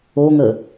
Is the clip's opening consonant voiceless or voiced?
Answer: voiced